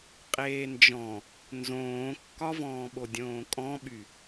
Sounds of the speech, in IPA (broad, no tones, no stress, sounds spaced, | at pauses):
qʼ eː n d͡ʒ ɔ̃ | n z õː kː ɒ v ɔ̃ː ɓ o dʲ õː kʼ ɔ̃ ɓ y